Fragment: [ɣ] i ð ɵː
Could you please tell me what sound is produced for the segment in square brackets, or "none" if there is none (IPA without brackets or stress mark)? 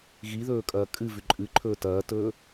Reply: ɣ